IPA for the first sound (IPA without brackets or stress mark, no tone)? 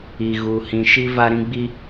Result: i